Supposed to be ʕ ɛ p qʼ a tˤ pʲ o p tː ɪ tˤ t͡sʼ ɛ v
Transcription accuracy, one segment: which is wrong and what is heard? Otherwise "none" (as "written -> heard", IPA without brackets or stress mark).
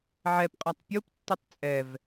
none